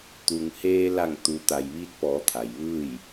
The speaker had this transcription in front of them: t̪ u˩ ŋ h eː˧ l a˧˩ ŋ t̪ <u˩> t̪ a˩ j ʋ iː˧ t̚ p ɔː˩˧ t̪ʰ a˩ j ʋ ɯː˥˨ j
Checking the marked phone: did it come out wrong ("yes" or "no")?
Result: no